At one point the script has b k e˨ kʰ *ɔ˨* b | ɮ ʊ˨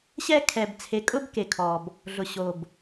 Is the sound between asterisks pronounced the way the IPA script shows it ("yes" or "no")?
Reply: yes